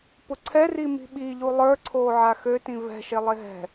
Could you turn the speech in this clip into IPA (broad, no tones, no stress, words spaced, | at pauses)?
pʊǀʰɛri mi̤ɓiʎu lˠə˞ǀʰoːʕa xøtĩ vɛ̤ʃe lˠeɦɛ̤